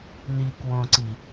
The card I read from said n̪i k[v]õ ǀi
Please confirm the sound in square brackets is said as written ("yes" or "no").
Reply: no